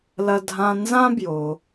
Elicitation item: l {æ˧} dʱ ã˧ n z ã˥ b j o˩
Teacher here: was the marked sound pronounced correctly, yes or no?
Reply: no